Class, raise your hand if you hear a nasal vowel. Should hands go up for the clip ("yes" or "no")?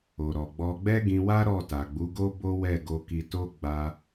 yes